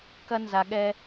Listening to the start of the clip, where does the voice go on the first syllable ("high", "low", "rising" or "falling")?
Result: high